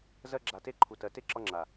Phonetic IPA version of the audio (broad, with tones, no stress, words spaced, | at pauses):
zɜ˧ɡ͡ǁa˨te˧ ǃʰu˨tɜ˨te˦ ǁɒ˧ŋ͡ǁa˨